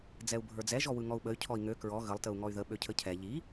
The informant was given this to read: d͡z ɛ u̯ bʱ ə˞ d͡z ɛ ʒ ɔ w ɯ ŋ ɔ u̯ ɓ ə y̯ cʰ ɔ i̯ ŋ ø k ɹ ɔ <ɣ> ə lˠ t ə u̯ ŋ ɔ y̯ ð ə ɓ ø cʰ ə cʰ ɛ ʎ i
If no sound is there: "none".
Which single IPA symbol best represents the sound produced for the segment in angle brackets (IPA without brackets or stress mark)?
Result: ɣ